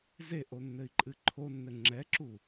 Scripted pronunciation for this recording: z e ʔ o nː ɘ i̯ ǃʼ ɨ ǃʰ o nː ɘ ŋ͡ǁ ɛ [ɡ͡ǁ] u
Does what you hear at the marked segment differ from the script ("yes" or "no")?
yes